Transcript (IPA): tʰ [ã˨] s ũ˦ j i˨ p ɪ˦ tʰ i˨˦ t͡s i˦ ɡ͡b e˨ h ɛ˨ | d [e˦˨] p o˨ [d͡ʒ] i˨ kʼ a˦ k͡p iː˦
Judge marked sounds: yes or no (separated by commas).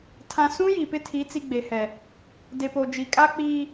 yes, no, yes